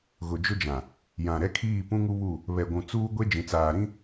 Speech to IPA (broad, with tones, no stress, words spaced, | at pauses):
ɣʊ˨d͡ʒʊ˦d͡ʒã˨ | jã˨ɾɛ˦kʰiː˦˨ pũ˦ŋu˦βu˦˨ | βɛ˨ɡʷũ˨t͡suː˦ɡʷe˦ d͡ʒĩ˨t͡saː˨ɾĩ˦